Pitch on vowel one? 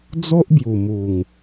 high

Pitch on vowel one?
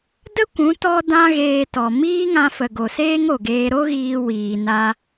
high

